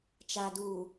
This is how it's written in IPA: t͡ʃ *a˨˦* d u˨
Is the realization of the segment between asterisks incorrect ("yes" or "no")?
yes